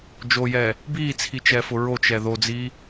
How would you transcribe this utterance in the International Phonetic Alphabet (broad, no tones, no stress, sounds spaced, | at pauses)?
d͡ʒ o j ɛː | b iː t͡sʰ i t͡ʃ ɛː f ʊ ɹ o t͡ʃ ɛ ð o d͡z iː